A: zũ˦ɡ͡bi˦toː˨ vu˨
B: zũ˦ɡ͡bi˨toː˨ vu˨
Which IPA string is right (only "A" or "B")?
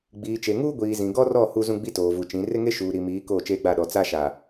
A